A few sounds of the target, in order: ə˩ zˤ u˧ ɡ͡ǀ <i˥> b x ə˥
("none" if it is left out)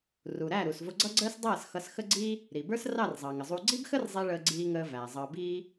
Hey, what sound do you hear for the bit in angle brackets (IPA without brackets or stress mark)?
i˥